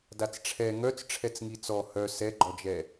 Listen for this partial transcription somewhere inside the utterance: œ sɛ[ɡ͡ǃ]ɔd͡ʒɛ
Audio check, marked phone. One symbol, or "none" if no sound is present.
ɡ͡ǃ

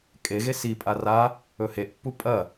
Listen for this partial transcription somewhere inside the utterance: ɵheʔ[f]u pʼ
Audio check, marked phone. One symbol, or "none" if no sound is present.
pː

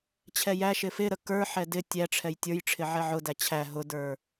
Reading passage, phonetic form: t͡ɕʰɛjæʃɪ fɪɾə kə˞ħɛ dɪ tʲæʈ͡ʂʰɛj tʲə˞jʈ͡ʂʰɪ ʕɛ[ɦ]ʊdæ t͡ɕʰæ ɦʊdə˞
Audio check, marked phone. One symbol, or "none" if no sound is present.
ʕ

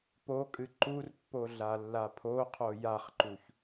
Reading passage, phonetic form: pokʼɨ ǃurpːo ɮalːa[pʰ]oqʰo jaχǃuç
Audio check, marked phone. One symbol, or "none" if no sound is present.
pʰ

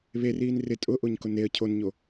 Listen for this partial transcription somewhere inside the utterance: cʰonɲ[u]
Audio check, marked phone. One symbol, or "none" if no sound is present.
o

